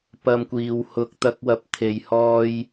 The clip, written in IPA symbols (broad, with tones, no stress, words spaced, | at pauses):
pɐ˧mkʷiː˨w hʊ˨k̚t̪ɐ˧k̚wɐ˨˥p̚ t̪ʰe˨j hɔː˧j